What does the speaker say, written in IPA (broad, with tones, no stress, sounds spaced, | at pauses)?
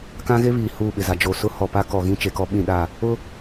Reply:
k ã˦ ɣ e˦ β iː˨ h uː˦˨ ɓ ɪ˨ z a˨ d͡ʒ o˨ s ʊ˦ h ɔ˨ p a˦ k ɔ˨ ɣ ĩ˦ t͡ʃ e˨ k ɔ˦ ɓ ĩ˦˨ ɗ a˦˨ | ʊ˦